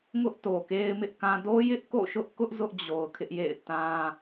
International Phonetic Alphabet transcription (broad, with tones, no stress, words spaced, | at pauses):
ŋʊ˦ʔ to˨ke˦ɪ̯mɪ˦ʔkã˦ do˦jɪ˦ʔ ko̰˦˨ʃʊ˦ʔkʊ˦ʔ zʊ˦ʔd͡ʑo˨ʊ̯ kʰɪ˦ʔjḛ˦˨ɪ̯ tã˦